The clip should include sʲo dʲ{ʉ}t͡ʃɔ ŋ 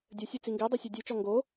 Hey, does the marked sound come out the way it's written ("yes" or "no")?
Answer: yes